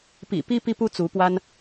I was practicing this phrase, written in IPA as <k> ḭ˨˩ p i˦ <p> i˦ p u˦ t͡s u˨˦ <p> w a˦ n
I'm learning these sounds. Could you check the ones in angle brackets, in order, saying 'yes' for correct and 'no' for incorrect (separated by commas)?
no, yes, yes